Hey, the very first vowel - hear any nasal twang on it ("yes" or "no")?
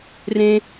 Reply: yes